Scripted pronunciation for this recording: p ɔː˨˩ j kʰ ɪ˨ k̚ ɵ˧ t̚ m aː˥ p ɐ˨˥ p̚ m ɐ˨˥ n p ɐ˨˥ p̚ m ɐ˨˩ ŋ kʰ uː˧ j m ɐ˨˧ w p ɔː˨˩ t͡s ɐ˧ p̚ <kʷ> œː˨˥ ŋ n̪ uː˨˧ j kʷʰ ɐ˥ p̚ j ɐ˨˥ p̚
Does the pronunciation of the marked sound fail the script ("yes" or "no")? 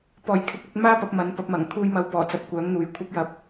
no